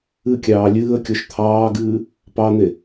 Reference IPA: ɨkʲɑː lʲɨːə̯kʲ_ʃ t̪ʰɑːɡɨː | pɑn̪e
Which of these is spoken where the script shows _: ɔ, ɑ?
ɔ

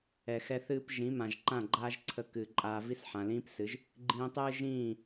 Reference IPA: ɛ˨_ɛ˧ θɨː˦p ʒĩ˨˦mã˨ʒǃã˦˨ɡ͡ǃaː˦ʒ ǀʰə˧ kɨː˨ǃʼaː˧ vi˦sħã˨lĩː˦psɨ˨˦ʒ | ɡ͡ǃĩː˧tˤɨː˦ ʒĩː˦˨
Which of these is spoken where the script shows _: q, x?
x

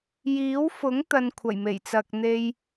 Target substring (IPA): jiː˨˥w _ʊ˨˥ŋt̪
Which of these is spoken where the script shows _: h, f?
f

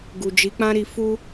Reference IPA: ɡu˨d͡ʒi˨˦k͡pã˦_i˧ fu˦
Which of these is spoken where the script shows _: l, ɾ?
ɾ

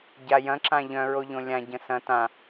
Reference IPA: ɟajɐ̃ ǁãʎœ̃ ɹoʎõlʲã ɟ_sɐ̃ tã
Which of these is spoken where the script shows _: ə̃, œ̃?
ə̃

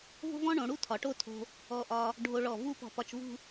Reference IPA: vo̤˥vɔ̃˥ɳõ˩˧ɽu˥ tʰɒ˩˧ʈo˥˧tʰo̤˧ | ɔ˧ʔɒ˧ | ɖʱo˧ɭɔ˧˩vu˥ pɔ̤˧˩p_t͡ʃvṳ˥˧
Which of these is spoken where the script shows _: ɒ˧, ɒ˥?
ɒ˧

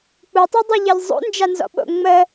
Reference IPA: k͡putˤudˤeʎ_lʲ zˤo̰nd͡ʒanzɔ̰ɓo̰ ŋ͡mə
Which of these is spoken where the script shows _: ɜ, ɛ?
ɜ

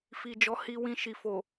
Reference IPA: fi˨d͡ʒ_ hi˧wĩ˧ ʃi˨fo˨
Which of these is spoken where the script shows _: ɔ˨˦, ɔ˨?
ɔ˨˦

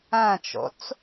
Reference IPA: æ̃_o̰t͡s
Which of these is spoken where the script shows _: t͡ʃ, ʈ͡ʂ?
t͡ʃ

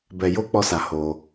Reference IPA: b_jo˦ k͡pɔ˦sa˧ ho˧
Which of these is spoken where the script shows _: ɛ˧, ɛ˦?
ɛ˧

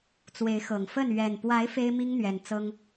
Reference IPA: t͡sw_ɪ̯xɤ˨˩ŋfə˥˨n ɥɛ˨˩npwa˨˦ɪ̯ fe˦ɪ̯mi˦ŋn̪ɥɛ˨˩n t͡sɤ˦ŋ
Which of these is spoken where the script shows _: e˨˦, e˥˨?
e˨˦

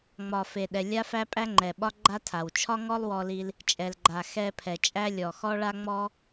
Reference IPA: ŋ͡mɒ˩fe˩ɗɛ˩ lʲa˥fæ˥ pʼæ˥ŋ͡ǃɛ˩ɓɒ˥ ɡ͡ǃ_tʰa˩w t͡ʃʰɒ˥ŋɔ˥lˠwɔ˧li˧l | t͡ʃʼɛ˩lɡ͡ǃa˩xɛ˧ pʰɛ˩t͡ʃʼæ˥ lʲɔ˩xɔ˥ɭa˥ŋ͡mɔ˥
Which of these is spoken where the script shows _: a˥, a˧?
a˥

